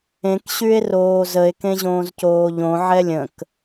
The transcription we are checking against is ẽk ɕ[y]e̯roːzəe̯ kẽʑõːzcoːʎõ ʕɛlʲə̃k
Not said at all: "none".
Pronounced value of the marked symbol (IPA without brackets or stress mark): y